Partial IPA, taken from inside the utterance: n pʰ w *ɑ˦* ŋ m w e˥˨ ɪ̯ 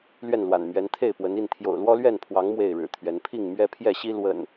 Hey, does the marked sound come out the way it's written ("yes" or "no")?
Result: no